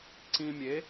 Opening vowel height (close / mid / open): close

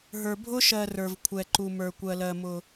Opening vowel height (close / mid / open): mid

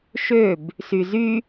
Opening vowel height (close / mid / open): mid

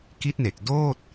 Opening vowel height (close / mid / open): close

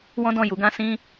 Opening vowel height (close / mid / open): mid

